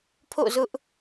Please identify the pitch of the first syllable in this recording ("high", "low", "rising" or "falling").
falling